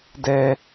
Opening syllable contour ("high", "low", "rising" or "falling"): high